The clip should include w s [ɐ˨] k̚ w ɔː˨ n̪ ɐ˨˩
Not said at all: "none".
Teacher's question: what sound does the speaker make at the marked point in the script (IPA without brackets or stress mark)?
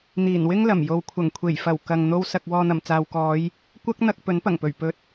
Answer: ɐ˨